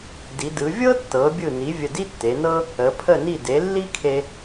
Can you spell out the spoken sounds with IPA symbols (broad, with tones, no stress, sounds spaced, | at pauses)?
d i˩˧ d ɯ˩˧ vʲ ɤ˥ tː ɤ˩˧ bʲ ɯ˧˩ n i˩˧ vʲ ə˧˩ d i˥ tː e˩˧ n ɤ˥ | ə˩˧ pʰ ə˧˩ n i˧˩ d e˩˧ lː i˥ kʰ e˧